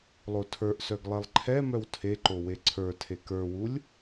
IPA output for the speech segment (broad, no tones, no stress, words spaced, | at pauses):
lˠotʰə˞ʔsœɡ lˠelˠǃʰɛmœw tʰeǃo weǀʰə˞tʰe kə˞wulʲ